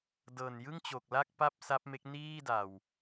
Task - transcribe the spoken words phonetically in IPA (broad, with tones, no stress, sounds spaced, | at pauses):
d ɤː˨˩ n j ɯ˥˩ ŋ t͡ɕ o˨˩ k̚ l a˥˩ k̚ p a˥˩ p̚ s a˦˥ p̚ m e˦˥ k̚ n iː˥˩ d a˨˩ w